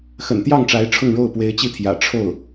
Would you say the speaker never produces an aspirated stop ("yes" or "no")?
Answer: no